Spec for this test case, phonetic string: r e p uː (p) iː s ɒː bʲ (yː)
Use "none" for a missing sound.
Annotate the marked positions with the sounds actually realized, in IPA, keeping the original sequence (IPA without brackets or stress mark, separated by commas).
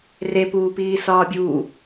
p, uː